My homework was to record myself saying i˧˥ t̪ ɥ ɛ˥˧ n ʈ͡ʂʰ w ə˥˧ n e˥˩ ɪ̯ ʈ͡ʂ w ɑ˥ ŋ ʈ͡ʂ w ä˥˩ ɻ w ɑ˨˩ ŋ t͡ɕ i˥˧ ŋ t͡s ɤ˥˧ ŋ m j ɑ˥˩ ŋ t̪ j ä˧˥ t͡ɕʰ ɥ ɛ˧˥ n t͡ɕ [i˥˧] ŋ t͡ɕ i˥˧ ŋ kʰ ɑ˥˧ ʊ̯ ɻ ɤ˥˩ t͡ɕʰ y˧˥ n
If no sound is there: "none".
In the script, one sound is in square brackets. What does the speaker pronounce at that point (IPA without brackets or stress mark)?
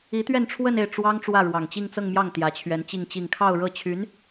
i˥˧